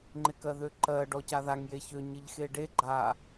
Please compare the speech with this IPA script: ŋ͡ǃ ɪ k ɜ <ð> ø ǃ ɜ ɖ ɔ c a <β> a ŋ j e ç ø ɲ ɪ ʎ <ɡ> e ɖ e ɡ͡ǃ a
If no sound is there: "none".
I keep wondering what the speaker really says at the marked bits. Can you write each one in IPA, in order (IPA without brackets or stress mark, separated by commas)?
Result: ð, ð, x